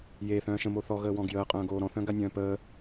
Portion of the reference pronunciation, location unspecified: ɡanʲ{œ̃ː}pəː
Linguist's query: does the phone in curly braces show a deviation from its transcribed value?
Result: no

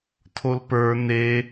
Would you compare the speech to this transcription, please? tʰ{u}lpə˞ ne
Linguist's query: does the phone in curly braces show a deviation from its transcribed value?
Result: yes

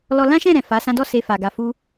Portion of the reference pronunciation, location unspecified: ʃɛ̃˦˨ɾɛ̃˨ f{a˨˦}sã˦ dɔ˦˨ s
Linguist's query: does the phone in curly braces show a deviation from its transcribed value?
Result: no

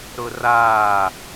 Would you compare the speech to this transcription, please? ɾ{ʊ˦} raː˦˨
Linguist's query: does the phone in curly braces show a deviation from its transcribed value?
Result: no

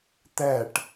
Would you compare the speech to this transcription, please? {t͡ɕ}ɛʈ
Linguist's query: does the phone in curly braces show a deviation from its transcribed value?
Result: yes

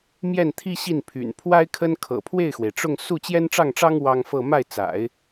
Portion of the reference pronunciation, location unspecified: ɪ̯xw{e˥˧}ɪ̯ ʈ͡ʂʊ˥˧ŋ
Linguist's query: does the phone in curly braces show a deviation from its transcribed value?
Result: yes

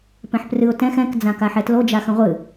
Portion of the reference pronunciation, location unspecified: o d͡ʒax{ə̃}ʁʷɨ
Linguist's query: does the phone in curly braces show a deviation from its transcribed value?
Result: no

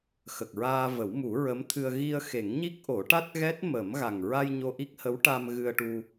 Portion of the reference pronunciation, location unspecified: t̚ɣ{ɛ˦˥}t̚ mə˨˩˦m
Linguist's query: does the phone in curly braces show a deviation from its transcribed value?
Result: no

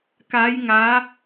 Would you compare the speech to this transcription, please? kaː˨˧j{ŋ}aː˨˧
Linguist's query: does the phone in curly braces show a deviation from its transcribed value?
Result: no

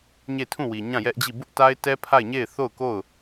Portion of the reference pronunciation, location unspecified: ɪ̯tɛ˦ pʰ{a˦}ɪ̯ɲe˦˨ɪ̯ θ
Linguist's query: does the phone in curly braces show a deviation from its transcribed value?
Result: yes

